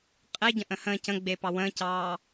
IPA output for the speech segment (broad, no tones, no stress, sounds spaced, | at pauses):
qʼ e ɟ ə̃ ʔ ə̃ h ə̃ː c ə̃ ɡ͡b e p ɑ w ə̃ː c ɑː